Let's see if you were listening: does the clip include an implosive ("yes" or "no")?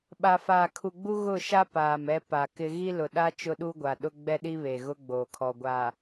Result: yes